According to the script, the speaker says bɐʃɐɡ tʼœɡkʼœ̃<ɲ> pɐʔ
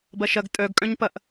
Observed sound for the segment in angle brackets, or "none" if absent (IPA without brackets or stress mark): ɲ